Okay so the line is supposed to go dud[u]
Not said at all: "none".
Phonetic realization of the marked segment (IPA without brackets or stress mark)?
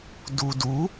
u